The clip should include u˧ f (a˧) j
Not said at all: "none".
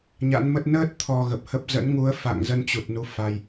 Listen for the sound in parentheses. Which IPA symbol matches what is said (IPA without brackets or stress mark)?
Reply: a˧